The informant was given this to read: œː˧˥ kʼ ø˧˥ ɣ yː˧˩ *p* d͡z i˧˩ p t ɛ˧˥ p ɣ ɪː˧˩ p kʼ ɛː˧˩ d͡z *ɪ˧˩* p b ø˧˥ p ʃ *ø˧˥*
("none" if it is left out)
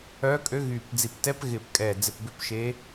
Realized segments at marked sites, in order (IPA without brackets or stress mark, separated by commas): p, ɪ˧˩, e˧˥